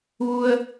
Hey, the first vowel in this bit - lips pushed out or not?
yes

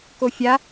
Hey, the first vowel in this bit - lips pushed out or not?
yes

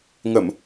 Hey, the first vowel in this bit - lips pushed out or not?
no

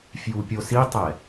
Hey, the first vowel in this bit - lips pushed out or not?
yes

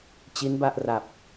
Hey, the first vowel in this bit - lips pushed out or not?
no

